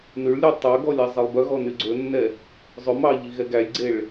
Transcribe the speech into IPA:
n ʉ ɭ lʲ ø tˤ œ ɡ ɔ lʲ æ zˤ e lˠ b œ ɣ ɔ n y ɡ͡ǀ ɵ nː ɛ | zˤ ɵ m ɑ ʎ i ɣ ɛ ɡ æ lʲ ɡ͡ǀ e ɭ

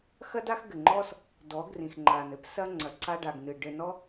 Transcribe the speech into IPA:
x ɐ˦ d a˦ x ɡ ɘ˨ ŋ͡ǃ ɔ˦ s | d ɔ˨˦ ɡ r ĩ˨ x ŋ͡ǃ a˨ n ɘ˦ p s ɐ˧ ŋ͡ǀ ɐ˨ ǀ a˧ ɖ a˨ ɡ n ɨ˨ ɖ ɘ˨ n ɔ˦

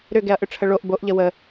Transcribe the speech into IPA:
ɾ ʏ ɡ ɛ ɐ̯ ʔ ʏ ʈ͡ʂʰ ə ɭ o ʔ b o ʔ ʎ ə w ə

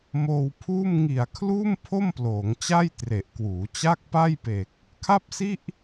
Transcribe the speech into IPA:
m oː˧ w pʰ uː˥˩ m ŋ i˨˩ a̯ kʰ l uː˥˩ m pʰ o˥˩ m p l oː˩˦ ŋ t͡ɕ a˥˩ j t r e˨˩ ʔ k w uː˩˦ t͡ɕ a˥˩ k̚ p a˥˩ j p e˨˩ k̚ | kʰ a˥˩ p̚ s i˥˩ ʔ

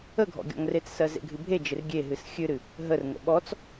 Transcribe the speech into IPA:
ə ɡʱ ɔ̰ ɡʲ ɔ̰ ŋ r e t͡s s ɜ z ḛ ɡʱ ɨ bʱ e d͡ʒ ɪ r ɡʲ e ɦ ɨ s xʲ ɨ ɾ ɨ | ɦ ə r ŋ ə̰ ɓ ɔ t͡s

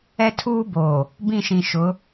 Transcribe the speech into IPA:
ɛ˦ tʰ uː˦ b oː˨ | b ĩ˦˨ ʃ ĩ˨ ʃ ʊ˨˦

